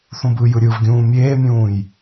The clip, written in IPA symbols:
θ ũ b ɯ j ɯ ɾʲ ɯ v ɡʲ ũː mʲ eː mʲ ũː j

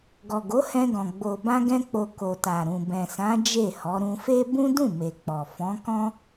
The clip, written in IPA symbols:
ɡ ɔ˨ ɡ o˨˦ h ɛ̃˧ ɡ ɔ̃˨ ɡ͡b o˨ b ã˧ ɡ ɛ̃˧ k͡p o˨ k o˨ t a˨ ɾ ũ˨ b ɛ̃˨ s ã˨˦ d͡ʒ e˦˨ h ɔ˨˦ ɾ ũ˧ f e˦ b ũ˦ d ũ˦˨ m e˨ k͡p ɔ˨ f ɔ̃˨˦ k ɔ̃˦

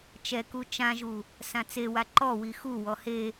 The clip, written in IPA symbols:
t͡ʃ ɛ k u t͡ʃ ã ʒ u | s ã t͡s e w a ǃ ɔ w i x u w ɔ h e

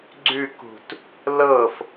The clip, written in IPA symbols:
ɡ͡ǀ ʉ k ṳ t | l ɤ f

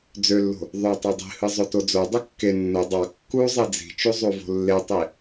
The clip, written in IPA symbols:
d͡z ø lː o̤ | ðˤ ø tˤ ø dˤ i̤ h ɯ zˤ o t o d͡z o dˤ ɯ kː e nː o dˤ ɑ kː u zˤ e d͡z i̤ t͡ʃ u zˤ u v o̤ lː e tˤ i

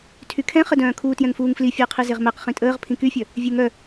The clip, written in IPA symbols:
tʰ y kʰ ɛ̃ χ ə d œ̃ː kʰ uː t j ɛ̃ ŋ f uː ŋ f l i fʲ əː qʰ i z e ʁ m ɛ q χ ĩ tʼ əː ʁ pʰ ĩ k y fʲ œ | vʲ e ŋ œ

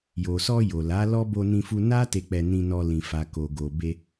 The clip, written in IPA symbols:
j o˨ s ɔ˧ j o˨ l a˨˦ l ɔ˦ b o˧ n ĩ˧ f u˧ n a˦ t e˧ k͡p ɛ˧ n ĩ˧ n ɔ˧ l ĩ˨ f a˨ k o˨ ɡ o˨ b e˧

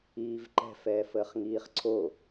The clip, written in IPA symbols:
iː v ǃ ɛ̤ f ɛː f əː χ ŋ iː χ ǀʰ o

